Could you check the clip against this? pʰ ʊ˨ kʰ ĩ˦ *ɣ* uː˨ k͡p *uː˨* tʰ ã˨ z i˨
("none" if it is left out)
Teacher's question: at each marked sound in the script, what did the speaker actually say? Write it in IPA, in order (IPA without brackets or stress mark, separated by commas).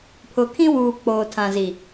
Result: w, oː˨